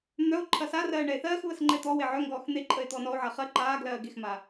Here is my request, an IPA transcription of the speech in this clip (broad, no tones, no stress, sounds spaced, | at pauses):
n̪ œ o̯ ǃʰ ɐ s a r ɜː ɳ ɛ e̯ θ ɜː x β ə s ŋ͡ǃ ɛ t̪ ɔ w e ʕ œ ŋ ɡ ɔː x n̪ e ǃʼ ə e̯ t̪ ɔː n ɔ o̯ ʕ a χ ɜ ǃ aː ɡ l ɜː ɡ e x m a